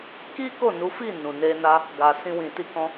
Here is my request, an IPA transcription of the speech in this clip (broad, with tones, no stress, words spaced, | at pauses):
ki˦ ko˦˨nu˨˦fi˦˨ nũ˨ne˧ na˧ | ɡa˨sĩ˧wĩ˨ ti˧kɔ̃˧